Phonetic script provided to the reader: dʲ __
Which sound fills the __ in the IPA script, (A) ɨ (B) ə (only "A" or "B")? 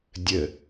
B